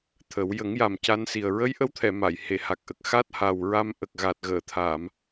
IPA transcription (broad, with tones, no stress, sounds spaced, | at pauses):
t̪ʰ ə˨˩˦ w j ə˨˩˦ ŋ j a˨˩ m c a˧ n s i˨˩ ə̯ ɹ ə˧˥ j ʔ ə˧˥ w t̪ʰ ɛ˨˩˨ m a˨˩˨ j h e˨˩˨ h a˨˩ k̚ ʔ ə˨˩ k̚ x a˦˥ t̚ h a˨˩ w ɹ a˧ m ʔ ə˨˩ k̚ ɣ a˨˩ t̚ ɣ əː˨˩˨ t̪ʰ a˨˩˨ m